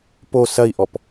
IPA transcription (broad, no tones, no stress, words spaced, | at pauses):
po sɐi̯ʔɔp